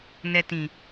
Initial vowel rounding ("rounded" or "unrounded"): unrounded